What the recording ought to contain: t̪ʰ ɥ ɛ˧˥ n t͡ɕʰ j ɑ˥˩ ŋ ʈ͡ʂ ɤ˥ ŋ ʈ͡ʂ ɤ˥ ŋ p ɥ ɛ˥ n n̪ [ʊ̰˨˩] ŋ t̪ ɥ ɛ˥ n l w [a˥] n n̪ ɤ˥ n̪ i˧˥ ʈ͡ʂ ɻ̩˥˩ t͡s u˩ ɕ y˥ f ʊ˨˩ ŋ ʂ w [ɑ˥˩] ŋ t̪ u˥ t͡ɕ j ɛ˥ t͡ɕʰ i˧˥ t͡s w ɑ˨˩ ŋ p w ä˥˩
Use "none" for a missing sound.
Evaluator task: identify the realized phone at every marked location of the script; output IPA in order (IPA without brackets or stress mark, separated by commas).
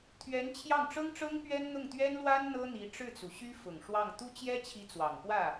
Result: ʊ˥˩, a˥, ɑ˥˩